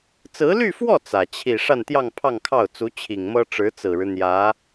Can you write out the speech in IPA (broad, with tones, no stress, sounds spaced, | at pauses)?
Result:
t͡s ɹ̩˧˥ l y˥˧ f w ɔ˥˩ t͡s ä˨˩ t͡ɕʰ i˥˧ ʂ a˥˧ n t̪ j ɑ˥˧ ŋ pʰ ɑ˥˧ ŋ kʰ ɑ˥˩ ʊ̯ t͡s u˧˥ t͡ɕʰ i˨˩ ŋ m ɤ˥ ʈ͡ʂ ɻ̩˧˥ t͡s ɹ̩˨˩ ɻ ɻ̩˦ n̪ j ä˧˥